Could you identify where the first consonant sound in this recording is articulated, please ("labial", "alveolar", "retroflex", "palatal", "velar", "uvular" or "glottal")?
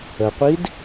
uvular